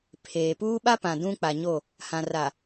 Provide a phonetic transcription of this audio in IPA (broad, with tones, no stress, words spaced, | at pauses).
pʰeː˨puː˦ ɓa˦pã˨ dũ˦k͡pa˨ɲo˦˨ | hã˨ ra˨